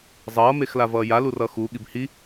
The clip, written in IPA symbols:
zˤʌːmexla vʌːja lurʌxu ɠibhi

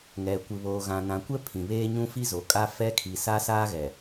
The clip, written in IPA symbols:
ŋɛ˨ kʷɪ˨βoː˨ɣã˨ nã˨kʷɛ˦ pʰĩ˨βeː˦ɲũ˦ fi˦zo˨kʼa˦ fɛ˦ kʰi˨sa˦saː˦ɣɛ˨

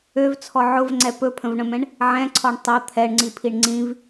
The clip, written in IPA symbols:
øvt͡sʰɔ ʕʊvŋ͡ǀɛ pɵpʰə̃vɳə̃mɛ̃ɳ | ʕɛ̃ǀʰɔɳ tˤʊ t̪ʰɛɳŋ͡ǀipʰiɳ ŋ͡ǀĩv

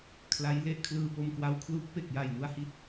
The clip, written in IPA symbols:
kʰla˦˥j le˥˩ʔkʰlɯː˧ po˧mkwa˧w kʰlu˦˥k̚pe˨˩k̚ja˨˩j nu˨˩a̯hi˦˥t̚

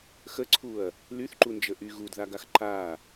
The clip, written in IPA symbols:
xəǀʰuɐ̯ | lyθǃund͡ʒə ʔy ɣudðaɡax ǃa

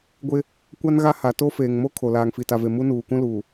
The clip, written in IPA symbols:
ɡʷɪ˦ | kʷa˦nɣa˦ ha˨ to˦feː˨ŋmo˦ kʰo˨ laː˨ŋfi˨ta˨ve˨ mu˦nuː˨ kũ˦luː˨

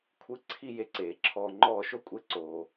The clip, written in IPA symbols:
kʷʰɨ˧˥˧ ǀʰi˦˨ je˦˨ǀeː˨˩ǁʰɔː˦˨ ŋ͡ǃɔː˦˨ʃo˥kʷʼe˧˥˧ ǀoː˨˩

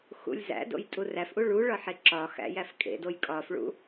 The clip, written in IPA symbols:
xṵlʲzæ̰do̰j tʼuræfʔu ɭuɭɒ ħeǁɒxæ̰ jæfkʼḛdoj kʼɒfɭṵ

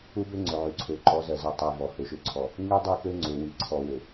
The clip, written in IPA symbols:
u˦bø˦ŋ͡ǀø˨ ʕy˨ǀʰø˨ ǃɔ˨˦zɜ˨zɜ˨ tˤi˨vɔ˨ hø˨ʃø˨ǀʰɔ˨ | ŋy˦dˤy˦˨kø˦ŋ͡ǀø˨ wi˨ǀʰɔ˨wø˨

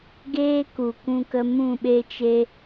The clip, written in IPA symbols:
ɡeː˦ku˨kũ˧kə˧ mũ˦˨ɓe˦t͡ʃe˦

